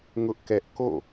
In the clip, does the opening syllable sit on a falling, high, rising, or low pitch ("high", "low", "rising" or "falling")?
high